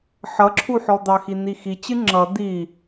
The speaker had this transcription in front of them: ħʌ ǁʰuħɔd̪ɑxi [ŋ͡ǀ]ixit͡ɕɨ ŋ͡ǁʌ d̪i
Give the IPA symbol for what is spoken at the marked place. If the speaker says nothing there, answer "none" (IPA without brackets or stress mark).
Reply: n̪